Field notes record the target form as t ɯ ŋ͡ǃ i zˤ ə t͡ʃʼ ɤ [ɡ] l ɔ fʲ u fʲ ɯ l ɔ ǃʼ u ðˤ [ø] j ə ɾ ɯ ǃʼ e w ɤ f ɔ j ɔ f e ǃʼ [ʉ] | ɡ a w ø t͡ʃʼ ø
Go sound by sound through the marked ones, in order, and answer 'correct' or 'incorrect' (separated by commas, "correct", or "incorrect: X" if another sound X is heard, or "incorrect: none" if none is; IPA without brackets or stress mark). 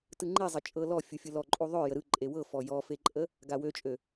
incorrect: none, correct, incorrect: ə